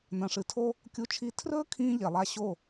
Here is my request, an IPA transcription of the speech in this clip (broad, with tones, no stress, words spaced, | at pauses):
nɐ̃˨ʂɨ˨tʰo˦ | kʲu˧t͡ʃʰi˧ tʰrɵː˦kʰĩː˧ ʎe˨lˠa˧ ɕo˦˨